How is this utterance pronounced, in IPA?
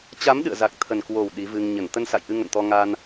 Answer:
t͡ɕ a˨˦ m ɗ ɨ̰˧˨ ə̯ z a˨˩ k̚ t̪ʰ ə˨˩ n k w o˨˩ w ɗ i˨˦ v ɨ˧ ŋ ɲ ə˧˩ n t̪ ə˧ n s a̰˧˨ j ʔ ɨ˧ ŋ ə̰˧˨ n t̪ ɔ˧ ŋ a˧ n

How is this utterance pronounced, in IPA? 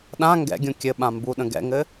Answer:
ɗ ã ŋ ɡ ɛ̰ ɡʲ ũ kʲ ɘ ɓ ã m b u ɗ ə̃ ɡ ɛ̰ ŋ ɘ

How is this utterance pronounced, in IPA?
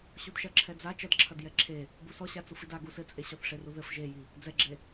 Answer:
ɕ u d ʃ ɐ ǁʰ ɛ d͡z a t͡ʃ ɐ d ǁʰ ɐ d j ɛ ǁʰ e | b u s ɔ ɕ a t͡s u f i d a ɡ u s ɘ t͡sʼ e ɕ ɔ θ ʂ e r u ð ɘ f ʒ e j i | d͡z ɛ ɡ͡ǁ e

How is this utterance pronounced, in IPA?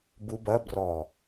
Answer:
b u b ɐ b r ɔ

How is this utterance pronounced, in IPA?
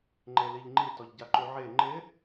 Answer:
ŋ͡ǃ e l i ʎ ŋ͡ǃ i t ɔ ʎ ɟ a ǃ u ʕ e ŋ͡ǃ ɪ

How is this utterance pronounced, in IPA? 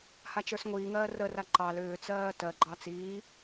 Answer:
h a t͡ʃ ə˞ s ŋʷ iː ŋ ɜː r ə r a ǃ ɑ l ʏː t͡s ɜː t ɜ ɡ͡ǃ ɑ t͡s iː

